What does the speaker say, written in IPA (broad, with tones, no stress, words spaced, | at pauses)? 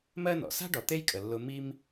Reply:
mɜ˥nɔ̰˩ sa̤˥ ɖɔ˨t̪e˥jkʼə˨ lːʊ˦ mi˥m